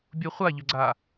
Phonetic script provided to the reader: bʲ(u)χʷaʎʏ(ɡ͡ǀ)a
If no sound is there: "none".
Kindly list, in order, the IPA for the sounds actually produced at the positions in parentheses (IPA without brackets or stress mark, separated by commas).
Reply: u, ɡ͡ǀ